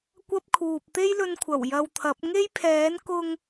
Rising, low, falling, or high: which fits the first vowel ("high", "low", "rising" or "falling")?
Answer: high